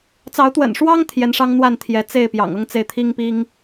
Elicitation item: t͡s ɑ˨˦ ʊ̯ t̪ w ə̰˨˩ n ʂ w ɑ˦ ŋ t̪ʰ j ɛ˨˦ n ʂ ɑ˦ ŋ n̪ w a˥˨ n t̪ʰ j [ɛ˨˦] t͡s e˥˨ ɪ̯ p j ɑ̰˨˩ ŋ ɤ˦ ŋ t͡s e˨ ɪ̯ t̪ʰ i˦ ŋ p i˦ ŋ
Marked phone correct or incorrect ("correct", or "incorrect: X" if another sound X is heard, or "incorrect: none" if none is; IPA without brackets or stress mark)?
correct